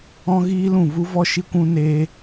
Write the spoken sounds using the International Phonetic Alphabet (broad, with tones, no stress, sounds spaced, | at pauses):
ɔ̃˦ ɣ iː˦ l ũ˦˨ v u˦ v ɔ˦ ʃ i˦ kʷ ũ˦ n eː˦